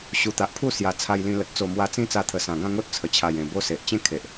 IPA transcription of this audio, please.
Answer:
ɕ u˨˩ t̪ a˨ ʔ pʰ u˥˧ s j a˨˩ t͡sʰ a˧ j l ĩ˧ l ə˨ t̚ t͡s o˨˩ m w a˧ t͡s ĩ˦ t͡s a˧ t̪ʰ ə˨˩ s ã˨˩ ɡ ã˥˧ ŋ o˦ t̚ t͡sʰ ə˨˩ t͡ɕʰ a˨˩ j ẽ˨˩ b o˦ s e˨ ʔ t͡ɕ ẽ˥˧ kʰ e˨ ʔ

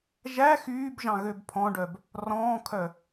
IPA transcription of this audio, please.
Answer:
ʒ æ x yː b ʒ ɑ̃ ɣ ø b pʰ ɔ̃ ɖ œ b | r ɔ̃ː kʰ œ

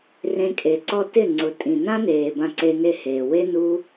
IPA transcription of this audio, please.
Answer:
r ẽ˧ kʼ e˨ ǀ ɔ˧ t ɪ˦˨ ŋ͡ǀ ʊ˨ tʼ ĩ˨ n ã˦ n eː˨ b ã˧ ǀ e˧ n e˦˨ h eː˨ w e˦ n u˦

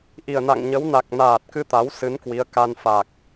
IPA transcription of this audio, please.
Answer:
ʔ i˨˩ ə̯ n a̰˧˨ ŋ ɲ ə˨˦ w n a˨˩ k̚ n aː˨˩ t̚ k ɨ˧ t̪ a˨˦ w s ɨ˨˦ n k w i˨˦ ə̯ k a˧ n f a˨˩ k̚

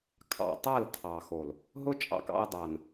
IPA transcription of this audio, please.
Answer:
kʰ ɑ̰˨ tˤ a˦˨ l tʰ ɑ˨ x o˨ l | ɦ ʊ˦ t͡ʃʼ ɑ̰˨ k ɑ̰˧ ɐ̯ dˤ a˨ n

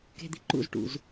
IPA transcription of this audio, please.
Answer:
k e̤ d̪ i ǃ ṵ z ʈ ṵ z

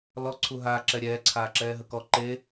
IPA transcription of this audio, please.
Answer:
l ɔ ǀʰ u ɦ aː ǁ ɛ ɾʲ ɛː ǀʰ aː ǁ ɛː ɦ ə k ɔ ǃ e

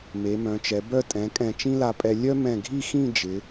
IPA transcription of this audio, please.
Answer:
m e˩˧ m œ̃˩˧ t͡ʃ ɛ˩˧ b œ˥˧ tʼ ɛ̃˩˧ kʼ ɛ̃˧˩ t͡ʃ ĩ˥ l a˧ pʼ ɛ˧ lʲ œ˥ m ɛ̃˧˩ ɡʱ i˥˧ x ĩ˥˧ d͡ʒ ɪ˩˧

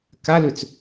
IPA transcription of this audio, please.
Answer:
k a l ʉ t͡s

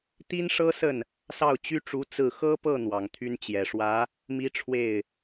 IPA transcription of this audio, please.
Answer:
t̪ i˥ n ʂ ɤ˥ s ə˥˩ n | s ɑ˥˩ ʊ̯ t͡ɕ y˥ ʈ͡ʂ u˧˥ t͡s ɹ̩˥˩ x ɤ˥ p ɤ˥˩ n̪ w ɑ˨˩ ŋ t̪ʰ y˥ n t͡ɕ j ɛ˨˩ ʂ w ä˧˥ | m i˥ ʈ͡ʂʰ w e˥˩ ɪ̯

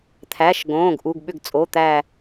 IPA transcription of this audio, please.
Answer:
t̪ʰ æ˩˧˩ ʃ ɡ õː˩˧˩ ɡ ʔ u˩˧˩ ɡ ɓ ʏ˧˩ ɡ t͡sʼ o˩˧˩ t̪ æ˧˩

